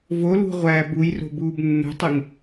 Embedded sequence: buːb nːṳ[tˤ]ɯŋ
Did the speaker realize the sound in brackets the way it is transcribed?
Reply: yes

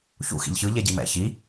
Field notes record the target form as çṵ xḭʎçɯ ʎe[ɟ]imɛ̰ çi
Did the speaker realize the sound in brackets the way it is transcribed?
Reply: yes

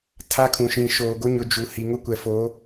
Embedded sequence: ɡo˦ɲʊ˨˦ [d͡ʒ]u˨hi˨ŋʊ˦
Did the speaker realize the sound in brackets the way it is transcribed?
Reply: yes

